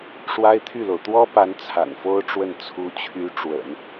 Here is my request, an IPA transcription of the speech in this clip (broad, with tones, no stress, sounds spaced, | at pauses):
ʂ w a˥ ɪ̯ t̪ʰ y˥˩ l o˩ ʊ̯ t̪ w ɔ˥ p a˧˥ n t͡sʰ a̰˨˩ n f o˥ ʊ̯ ʈ͡ʂ w ə˥˩ n t͡sʰ u˧˥ t͡ɕʰ y˧˥ ʈ͡ʂ w ə̰˨˩˦ n